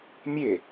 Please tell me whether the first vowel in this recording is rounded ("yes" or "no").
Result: no